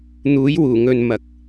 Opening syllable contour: rising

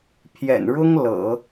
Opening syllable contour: low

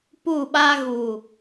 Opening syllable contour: falling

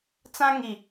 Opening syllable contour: high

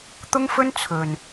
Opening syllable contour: high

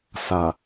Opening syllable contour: low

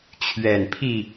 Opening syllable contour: low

